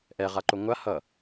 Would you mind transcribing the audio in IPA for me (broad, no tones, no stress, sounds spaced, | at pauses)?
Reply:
ʔ ɛ ʁ a ǃ o ŋʷ a h ʌ